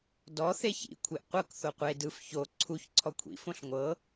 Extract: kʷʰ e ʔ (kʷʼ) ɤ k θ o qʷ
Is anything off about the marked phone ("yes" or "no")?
yes